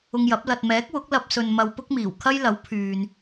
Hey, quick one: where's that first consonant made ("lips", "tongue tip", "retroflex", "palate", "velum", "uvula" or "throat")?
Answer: velum